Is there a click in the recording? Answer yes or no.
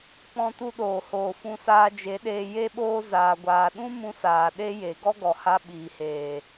no